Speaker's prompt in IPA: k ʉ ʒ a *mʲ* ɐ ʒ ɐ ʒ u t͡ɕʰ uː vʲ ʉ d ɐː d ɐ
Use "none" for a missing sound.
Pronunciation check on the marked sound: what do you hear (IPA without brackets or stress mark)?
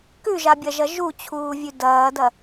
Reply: bʲ